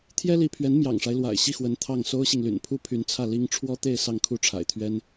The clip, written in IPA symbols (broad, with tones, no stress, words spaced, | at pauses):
t̪ʰjɛ˥li˧˥pʰɥɛ˧˥n mjɑ̰˨˩ŋʂa˦ɪ̯lwa̰˨˩ɪ̯ ɕi˥˩xwə˧˥n t̪ʰɑ˥˩ŋ so˥ʊ̯ɕi˨ŋly̰˨˩n pʰu˥pʰy˧˥nt͡sʰä˥˩ li˥ŋ ʈ͡ʂʰwɔ˥t̪e˥˧ɪ̯ sɑ˥˧ŋkʰu˥˩ʈ͡ʂʰa̰˨˩ɪ̯t̪ʰɥɛ˥n